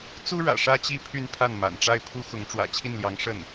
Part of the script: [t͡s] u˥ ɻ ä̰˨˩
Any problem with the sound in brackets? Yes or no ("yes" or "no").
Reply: no